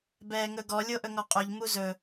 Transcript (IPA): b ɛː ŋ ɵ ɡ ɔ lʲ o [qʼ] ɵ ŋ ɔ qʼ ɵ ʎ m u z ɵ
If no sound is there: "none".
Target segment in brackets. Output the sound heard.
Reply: ʔ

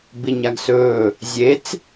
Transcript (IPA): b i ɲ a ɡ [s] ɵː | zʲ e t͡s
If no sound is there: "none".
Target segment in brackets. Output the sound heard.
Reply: s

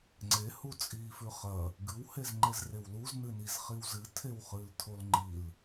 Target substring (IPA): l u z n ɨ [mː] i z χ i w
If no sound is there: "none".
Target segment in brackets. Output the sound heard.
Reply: n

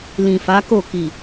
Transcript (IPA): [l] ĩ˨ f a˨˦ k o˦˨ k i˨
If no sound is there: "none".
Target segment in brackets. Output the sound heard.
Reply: l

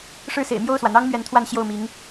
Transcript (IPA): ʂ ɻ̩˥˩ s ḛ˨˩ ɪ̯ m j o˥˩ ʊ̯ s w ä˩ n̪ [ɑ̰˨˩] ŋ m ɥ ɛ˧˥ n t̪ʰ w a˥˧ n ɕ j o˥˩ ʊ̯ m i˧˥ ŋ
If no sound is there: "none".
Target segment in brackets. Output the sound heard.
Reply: ɑ˥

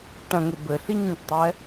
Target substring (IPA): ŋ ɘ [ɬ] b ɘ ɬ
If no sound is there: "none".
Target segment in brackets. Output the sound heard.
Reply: none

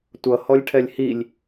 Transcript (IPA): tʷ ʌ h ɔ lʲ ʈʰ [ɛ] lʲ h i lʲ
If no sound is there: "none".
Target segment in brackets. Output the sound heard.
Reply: ɛ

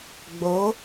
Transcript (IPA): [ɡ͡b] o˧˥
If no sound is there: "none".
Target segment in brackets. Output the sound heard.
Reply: ɡ͡b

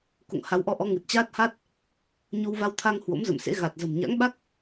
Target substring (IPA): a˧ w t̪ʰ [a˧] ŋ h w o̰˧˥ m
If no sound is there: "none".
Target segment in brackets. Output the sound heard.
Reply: a˧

